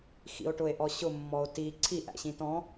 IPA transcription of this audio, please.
x ḭ o̯ ʈ ʊ e̯ ʔ ɔ ɕ ʊ mː ɔ o̯ t i ǀʰ i ʔ æ̰ ɕ ĩ t ɔ̃

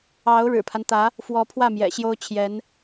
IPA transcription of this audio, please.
ɑ˧˥ ʊ̯ ɻ ɻ̩˨˩ pʰ a˦ n t̪ ä˧˥ | f w ɔ˧˥ pʰ w ä˥˩ m j ɛ̰˨˩ ɕ j o˥ ʊ̯ t͡ɕʰ j ɛ˧˥ n

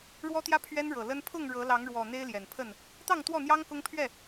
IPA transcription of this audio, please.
ɻ w ɔ˦ t̪ j ä˦ pʰ ɥ ɛ˦ n ɻ ɤ˨˩ l ə˦ n pʰ ʊ˥˨ ŋ ɻ ɤ˨˦ l ɑ˨˦ ŋ ɻ w ɔ˨˩ n̪ e˦ ɪ̯ l j ɛ˨˩ n pʰ ə˥˨ n | t̪ ɑ˥˨ ŋ t̪ w ɔ˥˨ n̪ j ɑ˦ ŋ k ʊ˦ ŋ pʰ ɥ ɛ˥˨

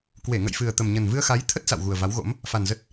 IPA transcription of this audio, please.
k w e˧˩ ŋ ə̰˧˨ j f ɨ˨˩ ə̯ t̪ ə˨˩ m ɲ ə˨˩ n v ɨ˧ ə̯ x a˨˦ j t̪ʰ ə˦˥ t̚ s a̰˧˨ w ɣ u˨˩ ə̯ v a˨˦ w ɣ o̰˧˥ m | f a˨˩ n z ə˦˥ t̚

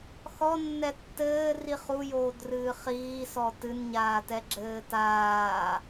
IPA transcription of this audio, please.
x ɔ nː ɛ tː ɘː r i χ u j oː d r ɨː χ iː s ɔ t ɨ n ɲ aː t ɛ ɡ͡ǁ ɘː t aː

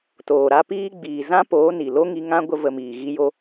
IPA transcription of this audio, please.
t oː˨ ɾ a˦ p iː˧ ɡ͡b iː˨ z ã˦ p oː˨˦ n i˨ l o˦ ŋ i˧ ŋ ã˦ ɡʷ ə˧ v ə˧ m iː˨ ɣ i˦ j o˦

